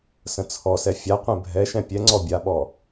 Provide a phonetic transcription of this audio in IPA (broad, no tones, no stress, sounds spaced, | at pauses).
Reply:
s ə̃ t͡sʰ ɔ s ɛ fʲ a qʷ ɛ̃ bʱ ɛ ʃ ɛ̃ pʲ ɛ ŋ͡ǀ ɔ bʲ a ɓ ɔ